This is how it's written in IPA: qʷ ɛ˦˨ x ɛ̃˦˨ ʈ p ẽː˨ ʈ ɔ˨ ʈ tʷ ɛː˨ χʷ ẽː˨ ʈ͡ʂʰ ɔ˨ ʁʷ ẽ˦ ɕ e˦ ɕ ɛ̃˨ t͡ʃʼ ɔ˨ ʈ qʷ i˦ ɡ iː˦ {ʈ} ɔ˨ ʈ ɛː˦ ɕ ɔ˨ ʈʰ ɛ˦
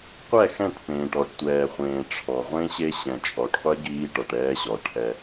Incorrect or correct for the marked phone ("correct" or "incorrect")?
correct